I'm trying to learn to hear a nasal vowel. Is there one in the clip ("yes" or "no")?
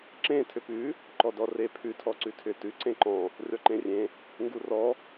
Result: yes